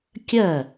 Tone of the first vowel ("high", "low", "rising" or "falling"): falling